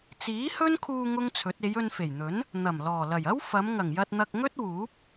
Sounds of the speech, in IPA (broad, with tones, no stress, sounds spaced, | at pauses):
t͡s iː˨˥ h ɵ˥ n kʰ uː˧ ŋ ʊ˥ ŋ t͡sʰ ɵ˨˥ t̚ e˨˧ j ɵ˧ n f e˨˩ j n̪ ɵ˨˥ n | n̪ ɐ˨˩ m l ɔː˨˩ l ɐ˨˩ j ɐ˥ w f ɐ˨˧ m ŋ ɐ˨˩ ŋ j ɐ˧ t̚ n̪ ɐ˧ k̚ ŋ ɵ˥ t̚ w uː˨˥ p̚